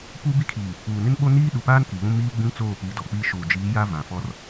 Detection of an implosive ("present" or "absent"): present